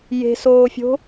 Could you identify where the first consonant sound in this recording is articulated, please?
palatal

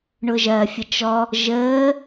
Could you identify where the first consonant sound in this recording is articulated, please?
retroflex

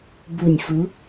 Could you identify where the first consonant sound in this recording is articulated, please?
labial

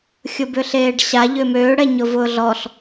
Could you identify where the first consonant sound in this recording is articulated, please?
velar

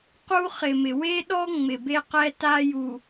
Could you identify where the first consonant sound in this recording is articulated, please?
uvular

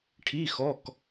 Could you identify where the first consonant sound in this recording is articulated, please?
retroflex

